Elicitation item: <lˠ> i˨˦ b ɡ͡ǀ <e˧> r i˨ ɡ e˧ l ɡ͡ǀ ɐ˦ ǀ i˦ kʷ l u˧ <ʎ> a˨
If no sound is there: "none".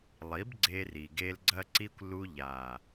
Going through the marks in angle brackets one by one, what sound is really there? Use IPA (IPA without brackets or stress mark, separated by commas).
lˠ, e˧, ʎ